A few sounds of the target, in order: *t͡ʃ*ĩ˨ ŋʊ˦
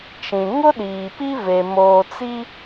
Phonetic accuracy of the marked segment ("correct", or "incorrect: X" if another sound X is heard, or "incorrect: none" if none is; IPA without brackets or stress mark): correct